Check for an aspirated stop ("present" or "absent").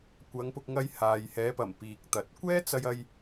absent